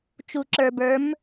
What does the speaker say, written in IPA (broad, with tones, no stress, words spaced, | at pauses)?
t͡ʃu˧ǁə˞˧bə˞˧˥m